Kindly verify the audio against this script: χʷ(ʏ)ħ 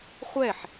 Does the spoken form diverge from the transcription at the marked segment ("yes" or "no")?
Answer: yes